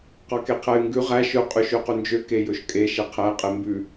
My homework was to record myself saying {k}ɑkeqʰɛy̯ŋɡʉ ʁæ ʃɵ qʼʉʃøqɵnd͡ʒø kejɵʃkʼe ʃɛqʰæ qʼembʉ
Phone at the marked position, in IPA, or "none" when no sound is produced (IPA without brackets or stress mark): q